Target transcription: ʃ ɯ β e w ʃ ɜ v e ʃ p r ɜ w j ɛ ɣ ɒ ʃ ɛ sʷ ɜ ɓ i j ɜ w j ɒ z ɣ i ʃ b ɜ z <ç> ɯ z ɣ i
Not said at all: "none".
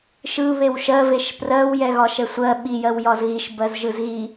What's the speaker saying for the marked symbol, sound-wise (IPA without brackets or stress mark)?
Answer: ʒ